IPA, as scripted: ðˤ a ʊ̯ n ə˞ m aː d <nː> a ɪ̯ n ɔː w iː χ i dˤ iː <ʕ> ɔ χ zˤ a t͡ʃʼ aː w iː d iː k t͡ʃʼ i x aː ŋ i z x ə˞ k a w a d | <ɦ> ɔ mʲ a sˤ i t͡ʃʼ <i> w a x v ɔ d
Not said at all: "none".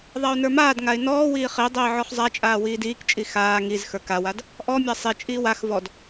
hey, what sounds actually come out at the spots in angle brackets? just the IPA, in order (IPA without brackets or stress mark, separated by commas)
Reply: ŋ, ʕ, ʔ, iː